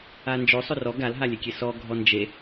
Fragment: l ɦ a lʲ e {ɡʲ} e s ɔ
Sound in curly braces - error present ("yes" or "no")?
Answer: yes